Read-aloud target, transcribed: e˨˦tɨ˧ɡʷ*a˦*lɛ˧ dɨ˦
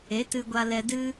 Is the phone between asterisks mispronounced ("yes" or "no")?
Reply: yes